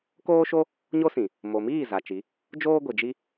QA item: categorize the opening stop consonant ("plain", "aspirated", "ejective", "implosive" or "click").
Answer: plain